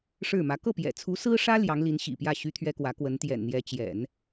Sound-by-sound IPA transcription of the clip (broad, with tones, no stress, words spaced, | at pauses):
ʂɻ̩˥˩mä˧˥ kɤ˥˩pjɛ̰˨˩t͡sʰu˧˥sɹ̩˥ ʂä˥ ljɑ˧˥ŋ li˧˥nɕḭ˨˩pjä˥˩ ɕy˥t̪ʰɥɛ˥kwä˧˥ kwə˧˥nt̪jɛ̰˨˩nn̪jɛ˧˥ t͡ɕjɛ̰˨˩˦n